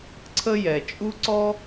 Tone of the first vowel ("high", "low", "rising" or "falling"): high